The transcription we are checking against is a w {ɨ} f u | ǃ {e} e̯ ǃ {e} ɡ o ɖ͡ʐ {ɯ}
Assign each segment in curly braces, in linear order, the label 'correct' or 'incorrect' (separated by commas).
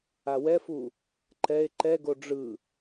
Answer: incorrect, incorrect, incorrect, correct